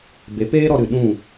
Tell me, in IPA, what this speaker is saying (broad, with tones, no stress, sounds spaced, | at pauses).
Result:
b e˨˦ p eː˦ ɾ ɔ˧ ɾ ɨ˨ ɗ ũ˦˨